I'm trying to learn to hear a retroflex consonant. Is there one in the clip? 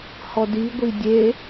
no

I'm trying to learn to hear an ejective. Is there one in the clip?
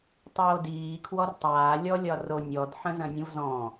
no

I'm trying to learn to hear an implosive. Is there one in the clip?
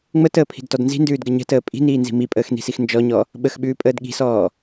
yes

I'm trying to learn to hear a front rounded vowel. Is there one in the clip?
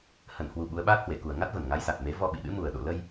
no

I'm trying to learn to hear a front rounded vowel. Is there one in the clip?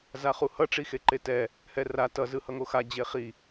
no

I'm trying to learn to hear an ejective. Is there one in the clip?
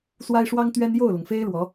no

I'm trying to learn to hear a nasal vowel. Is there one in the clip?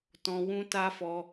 yes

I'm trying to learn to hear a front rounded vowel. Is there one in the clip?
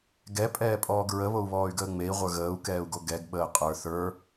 yes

